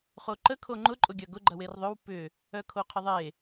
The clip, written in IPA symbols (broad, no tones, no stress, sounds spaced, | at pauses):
χ o ǃ ə kʰ o ŋ͡ǃ ʊ ǃʼ ʊ ɡʲ ɐ ɡ ʊ ɡ͡ǃ ɐ w e r ðˤ ʏ w p ʏ | œ kʰ o qʰ ɪ ðˤ e